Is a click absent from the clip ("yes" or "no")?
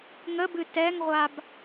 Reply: yes